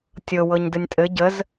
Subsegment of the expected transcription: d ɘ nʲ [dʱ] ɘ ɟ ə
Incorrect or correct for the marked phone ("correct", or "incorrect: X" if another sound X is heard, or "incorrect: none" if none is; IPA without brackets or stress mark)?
incorrect: tʼ